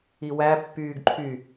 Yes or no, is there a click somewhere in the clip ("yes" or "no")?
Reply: yes